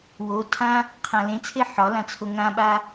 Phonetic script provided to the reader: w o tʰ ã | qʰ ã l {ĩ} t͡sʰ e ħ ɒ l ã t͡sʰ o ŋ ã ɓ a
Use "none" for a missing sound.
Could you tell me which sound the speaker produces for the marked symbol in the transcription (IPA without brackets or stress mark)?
ẽ